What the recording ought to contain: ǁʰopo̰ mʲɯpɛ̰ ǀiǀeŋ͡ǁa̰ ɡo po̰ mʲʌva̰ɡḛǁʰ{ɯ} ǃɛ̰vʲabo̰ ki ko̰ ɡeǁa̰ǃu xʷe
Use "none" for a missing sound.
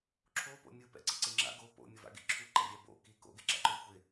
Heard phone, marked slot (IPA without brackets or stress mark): u